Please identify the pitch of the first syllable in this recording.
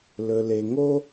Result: low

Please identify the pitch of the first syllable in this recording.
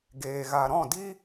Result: low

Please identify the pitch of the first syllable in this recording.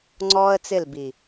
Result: high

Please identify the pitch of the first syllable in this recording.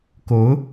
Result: rising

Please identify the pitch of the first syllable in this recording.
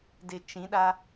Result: low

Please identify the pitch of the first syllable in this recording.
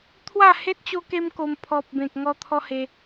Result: falling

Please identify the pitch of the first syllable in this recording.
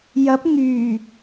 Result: rising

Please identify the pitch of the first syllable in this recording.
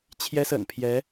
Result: high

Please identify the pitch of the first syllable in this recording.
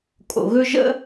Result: low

